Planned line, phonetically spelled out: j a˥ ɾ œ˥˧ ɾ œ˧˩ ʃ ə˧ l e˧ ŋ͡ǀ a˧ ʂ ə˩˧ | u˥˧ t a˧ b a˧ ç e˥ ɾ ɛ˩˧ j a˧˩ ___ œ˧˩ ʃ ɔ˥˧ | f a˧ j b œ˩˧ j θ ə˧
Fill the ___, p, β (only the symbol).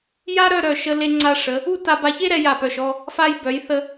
p